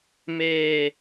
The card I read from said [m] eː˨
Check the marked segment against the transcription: correct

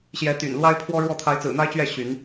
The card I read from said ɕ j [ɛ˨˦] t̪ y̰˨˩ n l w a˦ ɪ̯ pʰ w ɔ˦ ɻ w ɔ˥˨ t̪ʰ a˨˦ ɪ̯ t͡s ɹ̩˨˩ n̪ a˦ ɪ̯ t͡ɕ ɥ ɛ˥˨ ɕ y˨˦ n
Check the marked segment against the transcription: correct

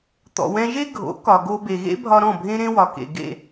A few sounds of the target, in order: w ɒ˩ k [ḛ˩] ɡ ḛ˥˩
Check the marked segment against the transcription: correct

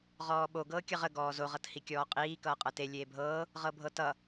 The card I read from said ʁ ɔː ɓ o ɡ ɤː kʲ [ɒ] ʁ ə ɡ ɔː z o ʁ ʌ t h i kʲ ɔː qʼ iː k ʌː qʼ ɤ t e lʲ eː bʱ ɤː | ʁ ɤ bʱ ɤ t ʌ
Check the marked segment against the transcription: incorrect: ʌ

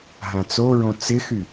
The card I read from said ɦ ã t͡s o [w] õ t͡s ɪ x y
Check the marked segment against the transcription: incorrect: ɹ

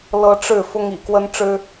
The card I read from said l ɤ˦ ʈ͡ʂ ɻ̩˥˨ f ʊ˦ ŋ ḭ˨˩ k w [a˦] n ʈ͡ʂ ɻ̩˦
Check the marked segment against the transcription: incorrect: ə˦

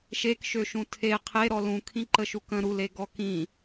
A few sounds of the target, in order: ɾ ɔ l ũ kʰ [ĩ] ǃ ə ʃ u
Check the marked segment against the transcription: correct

